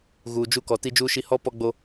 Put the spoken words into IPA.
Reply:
ɣ uː˨ d͡ʒ u˦ k ɔ˨ t i˦ d͡ʒ uː˦ ʃ i˦ h ɔ˦ p ɔ˦ ɡ͡b o˦

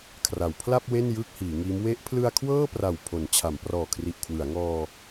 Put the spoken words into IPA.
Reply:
kʰ r a˩˦ w pʰ l a˥˩ p̚ w e˥˩ n j ɯː˥˩ k̚ h iː˩˦ ŋ iː˦˥ m w e˦˥ ʔ pʰ l ɯ˧ a̯ kʰ w ɤː˥˩ p r a˨˩ w pʰ o˩˦ n t͡ɕʰ a˩˦ m p r ɔː˨˩ kʰ r i˨˩ ʔ kʰ w ɯ˩˦ a̯ ŋ ɔː˧

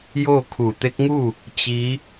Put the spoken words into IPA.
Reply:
j oː˥˨ kʰ u˧˩ t̪ e˧˥ k̚ ŋ u˥˨ | t͡ɕ i˧˥

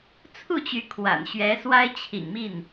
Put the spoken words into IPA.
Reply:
t͡sʰ u˥˩ t͡ɕ y˧˥ kʰ w a̰˨˩ n ɕ ɥ ɛ˧˥ s w a˥ ɪ̯ t͡ɕʰ ḭ˨˩ ŋ m i˥˩ n

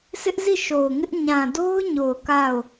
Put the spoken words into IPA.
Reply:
s ɪ˦ ʔ z i˦˨ ʃ o˨ ʊ̯ ŋ ɪ˦ ʔ ɲ ã˨ d o˦ ʊ̯ ɲ o˨ ʊ̯ k a˦˨ ʊ̯

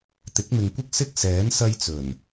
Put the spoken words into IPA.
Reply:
t̪ ɪ˨˥ k̚ m ɪ˨ ŋ kʷ ɪ˥ k̚ s ɪ˥ k̚ s ɛː˨˥ n s ɐ˧ j t͡s ɵ˨˩ n

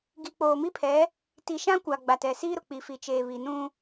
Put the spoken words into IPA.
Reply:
ɡ i˨ k͡p oː˨ m i˦ pʰ ɛ˨˦ | t i˨ ʃ ã˦ kʷ a˨ ɡ͡b a˨ t ɛ˨ s iː˦ ɾ ʊ˨ k͡p i˨ f i˨ t͡ʃ eː˨ β i˨ n ũ˦

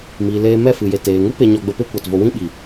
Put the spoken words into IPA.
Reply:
m iː˨ l eː˧ m ɛ˦˨ f ɨ˨ j e˨ t eː˨ ŋ u˦ p e˧ ɲ ɔ˧ ɡ͡b ə˧ p e˦ kʷ a˨ t v o˧ w ĩ˦ ɓ iː˨

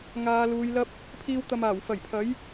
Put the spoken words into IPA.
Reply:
ŋ aː˨˧ l uː˨˧ j l ɐ˥ p̚ | pʰ iː˧ w t̪ ɐ˨ m aː˨˩ w f ɐ˨˩ j pʰ ɐ˨˥ j

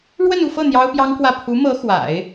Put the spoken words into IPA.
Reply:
ɻ w ə˥˧ n u˥˧ f ɤ˥˩ n̪ j ɑ˥ ʊ̯ p j ɑ˥ ŋ k w ä˥˩ pʰ u˧˥ m ɤ˧˥ x w a̰˨˩˦ ɪ̯

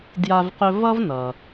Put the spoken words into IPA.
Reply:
d j a˦ v q ɵ˦ v ʌ˥ v n ʌ˩

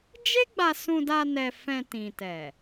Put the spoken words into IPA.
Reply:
d͡ʒ e˦ ɡ͡b a˧ s ũ˧ d a˧ n ɛ˧ f ɛ̃˧ t ĩ˨ t ɛ˨

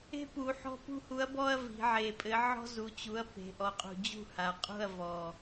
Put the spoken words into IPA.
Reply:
e̤˦ p u˩˧ ħ ɔ̤˦ p ṳ˦ h u˨˥ ɐ̯ b ɔ˦ ɐ̯ v i̤˩˧ ʕ e˨˩ pʼ ɘ˨˥ ʕ ɔ̤˦ z u˩˧ t͡ɕ u˩˧ ɐ̯ p e̤˩˧ ʔ ɔ˩˧ qʼ ṳ˨˩ d͡ʑ ṳ˥˩ h a˨˩ qʼ ṳ˥˩ ɐ̯ v ɔ˨˩

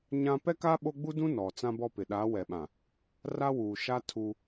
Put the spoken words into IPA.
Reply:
ɲ ã˦ p ɛ˦ k a˦ ɓ o˦ ɡ͡b u˦ d ũ˦ n ɔ˨ t͡s ã˦ b ɔ˦ p ɪ˨ ɗ a˨˦ w ɛ˨ ɓ ã˨ | r a˦ w uː˨ ʃ a˦ tʰ u˦

